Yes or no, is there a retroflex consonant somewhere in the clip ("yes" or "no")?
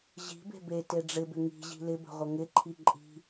yes